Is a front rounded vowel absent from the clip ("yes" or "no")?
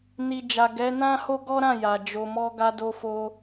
yes